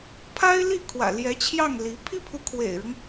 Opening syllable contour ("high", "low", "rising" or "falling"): high